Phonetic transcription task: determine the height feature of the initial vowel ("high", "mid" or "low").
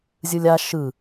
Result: high